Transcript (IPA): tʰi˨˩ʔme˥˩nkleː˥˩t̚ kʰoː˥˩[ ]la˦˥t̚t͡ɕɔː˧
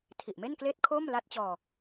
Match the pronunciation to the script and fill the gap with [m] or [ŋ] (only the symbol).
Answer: m